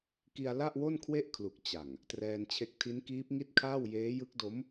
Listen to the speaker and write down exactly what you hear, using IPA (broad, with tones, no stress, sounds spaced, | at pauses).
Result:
k i˧ a̯ l a˥˩ ʔ w o˥˩ n kʰ w e˥˩ ʔ kʰ l u˨˩ k̚ t͡ɕ a˨˩ ŋ | t r ɛː˧ n t͡ɕʰ e˦˥ k̚ tʰ i˦˥ n k iː˦˥ p̚ ŋ i˥˩ t̚ kʰ aː˥˩ w j eː˦˥ j ɯ˦˥ k̚ d o˦˥ m